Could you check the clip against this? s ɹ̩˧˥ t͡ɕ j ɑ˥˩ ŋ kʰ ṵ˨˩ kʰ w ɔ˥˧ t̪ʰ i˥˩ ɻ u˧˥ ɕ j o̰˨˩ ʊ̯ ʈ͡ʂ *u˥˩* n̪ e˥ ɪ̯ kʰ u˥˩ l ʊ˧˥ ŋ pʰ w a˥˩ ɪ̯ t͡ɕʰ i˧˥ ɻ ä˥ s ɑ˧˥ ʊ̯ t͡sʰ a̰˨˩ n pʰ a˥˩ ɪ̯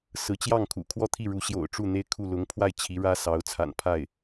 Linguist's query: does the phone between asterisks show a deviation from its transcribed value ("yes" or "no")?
no